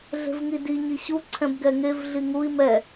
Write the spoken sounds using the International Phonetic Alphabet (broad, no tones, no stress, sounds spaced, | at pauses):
ɮ e̤ v ŋ i d i ɲ i ɕ u ǀʰ ɛ̃ b ɡ ɛ ŋ e v ɮ i ŋ u i̯ m ɛ